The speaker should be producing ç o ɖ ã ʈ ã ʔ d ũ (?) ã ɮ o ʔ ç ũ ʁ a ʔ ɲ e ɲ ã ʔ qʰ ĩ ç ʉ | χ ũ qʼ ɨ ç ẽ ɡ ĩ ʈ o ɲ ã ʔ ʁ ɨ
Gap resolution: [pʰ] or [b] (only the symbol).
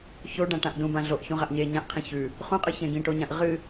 b